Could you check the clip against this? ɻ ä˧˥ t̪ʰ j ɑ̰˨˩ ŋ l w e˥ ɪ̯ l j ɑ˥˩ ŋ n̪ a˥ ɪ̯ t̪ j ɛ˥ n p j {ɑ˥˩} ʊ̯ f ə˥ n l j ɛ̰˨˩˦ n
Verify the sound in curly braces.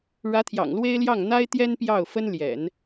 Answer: correct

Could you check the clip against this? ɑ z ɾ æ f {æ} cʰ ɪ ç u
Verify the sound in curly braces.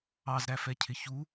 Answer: incorrect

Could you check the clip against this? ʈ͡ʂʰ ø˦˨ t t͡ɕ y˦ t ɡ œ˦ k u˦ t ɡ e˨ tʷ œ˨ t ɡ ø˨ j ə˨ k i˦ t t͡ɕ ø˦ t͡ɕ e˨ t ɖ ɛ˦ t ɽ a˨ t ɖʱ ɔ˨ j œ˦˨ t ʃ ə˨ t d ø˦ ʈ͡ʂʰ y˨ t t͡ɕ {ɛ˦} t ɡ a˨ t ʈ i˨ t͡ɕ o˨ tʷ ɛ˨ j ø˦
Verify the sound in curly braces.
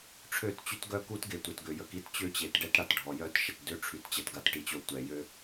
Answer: incorrect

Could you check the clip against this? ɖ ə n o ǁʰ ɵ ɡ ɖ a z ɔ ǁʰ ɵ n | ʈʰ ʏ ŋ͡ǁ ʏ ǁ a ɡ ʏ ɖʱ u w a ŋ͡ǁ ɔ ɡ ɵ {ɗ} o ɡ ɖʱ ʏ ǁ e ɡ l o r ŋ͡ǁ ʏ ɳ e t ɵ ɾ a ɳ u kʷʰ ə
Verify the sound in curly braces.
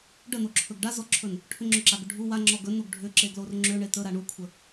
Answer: incorrect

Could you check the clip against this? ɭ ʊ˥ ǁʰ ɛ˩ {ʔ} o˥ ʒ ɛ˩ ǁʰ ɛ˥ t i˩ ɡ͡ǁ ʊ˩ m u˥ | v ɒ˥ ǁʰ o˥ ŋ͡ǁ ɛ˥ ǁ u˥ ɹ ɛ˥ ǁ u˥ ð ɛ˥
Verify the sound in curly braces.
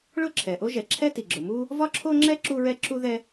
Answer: correct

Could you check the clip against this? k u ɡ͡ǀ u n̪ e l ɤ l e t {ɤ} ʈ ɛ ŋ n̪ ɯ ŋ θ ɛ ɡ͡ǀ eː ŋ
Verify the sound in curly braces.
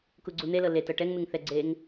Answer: correct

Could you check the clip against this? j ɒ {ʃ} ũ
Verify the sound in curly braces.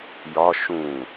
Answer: correct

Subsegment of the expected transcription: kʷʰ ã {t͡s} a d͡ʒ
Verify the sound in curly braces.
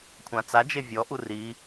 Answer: correct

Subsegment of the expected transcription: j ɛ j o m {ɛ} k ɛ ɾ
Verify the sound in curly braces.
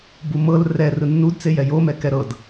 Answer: correct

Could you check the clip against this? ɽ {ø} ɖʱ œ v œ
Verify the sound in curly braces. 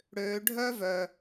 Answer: correct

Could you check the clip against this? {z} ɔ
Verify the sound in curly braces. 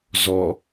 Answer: correct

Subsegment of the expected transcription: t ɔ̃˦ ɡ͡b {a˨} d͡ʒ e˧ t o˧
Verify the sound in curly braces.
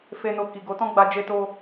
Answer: incorrect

